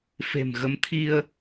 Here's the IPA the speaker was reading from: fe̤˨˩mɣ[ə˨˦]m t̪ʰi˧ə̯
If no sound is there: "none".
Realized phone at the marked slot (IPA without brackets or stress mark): ə˨˦